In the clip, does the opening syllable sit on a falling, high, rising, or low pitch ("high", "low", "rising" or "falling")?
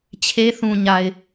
high